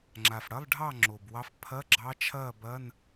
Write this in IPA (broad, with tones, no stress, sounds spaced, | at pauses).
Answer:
ŋ͡ǁ a˨˩ f ɽ ɐ˧˥˧ lˠ ɖʱ ɑ˥˩ ŋ͡ǁ o˨˩ b w ɑ˧˥ f pʰ ɐ˧˥˧ ɡ͡ǁ ɑ˧˥ t͡ʃʰ ɐː˥˩ b ɐ˧˥˧ n